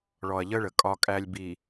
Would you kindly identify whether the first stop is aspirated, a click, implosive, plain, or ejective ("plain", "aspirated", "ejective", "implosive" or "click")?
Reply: ejective